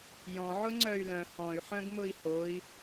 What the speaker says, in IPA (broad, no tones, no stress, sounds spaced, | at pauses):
j ɔ̃ ʕ ʊ ŋ͡ǀ œ y̯ l œ̃ h ɔ̃ y̯ ħ œ̃ ɡ m ʊ i̯ h o i̯